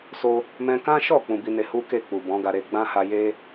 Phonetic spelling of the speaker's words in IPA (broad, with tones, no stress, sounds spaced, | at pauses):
s o˧ | m ɛ̃˧ k ã˦ ʃ ɔ˦˨ k͡p ũ˧ b i˧ n e˧ h u˦ k e˦˨ k͡p u˨ b ɔ̃˨˦ ɡ a˧ ɾ e˧ ɡ͡b ã˦ h a˧ j e˦